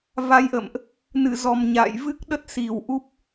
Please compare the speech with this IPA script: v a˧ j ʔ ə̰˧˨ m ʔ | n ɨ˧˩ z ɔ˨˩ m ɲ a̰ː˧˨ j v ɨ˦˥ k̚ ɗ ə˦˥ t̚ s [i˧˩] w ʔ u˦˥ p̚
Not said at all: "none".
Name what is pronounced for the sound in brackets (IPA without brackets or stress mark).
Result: i˧˩